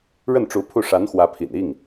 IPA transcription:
ɻə˥˩nʈ͡ʂu˧˥ pʰu˥˩ ʂa˧˥nxwä˧˥pʰḭ˨˩n i˥˩ŋ

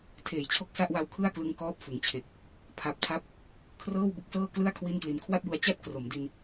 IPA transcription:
tʰeː˨˩jt͡ɕʰo˥˩k̚ sa˥˩ʔwa˧wkʰɯ˥˩a̯klɯ˧ŋ kɔː˥˩p̚fɯ˩˦ŋt͡ɕʰe˨˩k̚ | pʰa˨˩p̚tʰa˦˥p̚ | kʰrɤː˥˩wbɯ˦˥k̚sɤː˥˩klɯ˥˩a̯ kʰwi˥˩nkli˧n kʰwa˥˩t̚ju˧a̯t͡ɕa˥˩t̚ kro˩˦mdi˧n

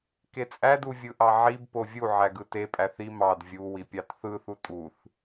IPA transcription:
ket͡sʼæd uvʲɯʔɑʕib povʲu ʕæɡɯte pʼæθi mɑd vʲu wipʲɑtθɯ θutʼuθ

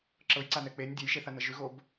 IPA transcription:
ǁɤjǀanɛ k͡penʲ dʲejʃeθanə ʒʉɣob

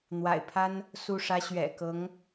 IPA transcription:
n̪wa̰˨˩ɪ̯pʰa˥n | su˥˩ʂä˥ ɕɥɛ̰˨˩kɤ˧˥ŋ

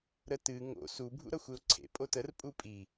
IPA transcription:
ɾətɨ ŋo̰ su bʱṵɾʌxʷeʊ̯ǀʰḛ pʼotər pʼupʼi

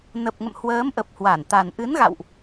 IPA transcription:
nə˨˩p̚ŋə̰˧˨m hwəː˨˦mʔə˨˩p̚ hwa˧˩nt̪a˨˩n ʔɨ˨˦nɣa̰˧˨wʔ

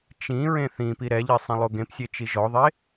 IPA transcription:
t͡ʃĩ ɹẽθĩpi ɾɛʎi sˤẽlˠoɡẽpsʲe t͡ʃiʒɔðˤe

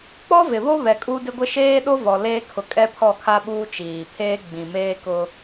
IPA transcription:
k͡pɔ˦vɪ˨βo˦ βɛ˨kʼu˦dɪ˦ɡʷɪ˦ ʃeː˦ɗo˦ vɔ˨leː˦kʰʊ˨ kʼɛ˦pʰɔ˦˨kʰa˦ɓuː˦ t͡ʃiː˨pʰeː˦ɡ͡bĩ˨ meː˦kʊ˦

